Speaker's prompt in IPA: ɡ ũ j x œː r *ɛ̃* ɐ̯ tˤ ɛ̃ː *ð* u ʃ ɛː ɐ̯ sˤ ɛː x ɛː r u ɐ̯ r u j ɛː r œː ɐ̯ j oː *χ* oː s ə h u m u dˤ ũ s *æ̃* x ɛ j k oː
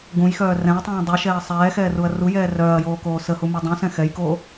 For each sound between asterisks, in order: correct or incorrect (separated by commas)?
correct, incorrect, incorrect, incorrect